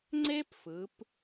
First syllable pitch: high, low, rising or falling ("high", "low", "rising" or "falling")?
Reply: high